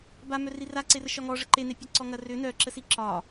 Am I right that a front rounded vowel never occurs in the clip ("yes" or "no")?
no